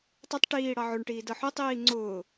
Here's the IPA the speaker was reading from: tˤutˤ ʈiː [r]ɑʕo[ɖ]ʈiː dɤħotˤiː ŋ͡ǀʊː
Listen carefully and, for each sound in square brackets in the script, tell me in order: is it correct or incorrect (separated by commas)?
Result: incorrect, incorrect